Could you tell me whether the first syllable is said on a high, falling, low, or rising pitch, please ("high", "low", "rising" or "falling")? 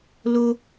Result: low